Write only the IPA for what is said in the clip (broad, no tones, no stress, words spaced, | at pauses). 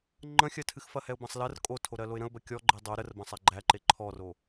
ŋ͡ǃə̃xʲɜtʰɨxfɐ hɛʊ̯bɐ̃sˤlɜr kʼotʰo ɾɜloɪ̯ɾə̃ʊ̯bɜ kʲɔɡ͡ǃe dˤo ɾər bɐ̃sˤæɡ͡ǃæǃe ǃʰɔro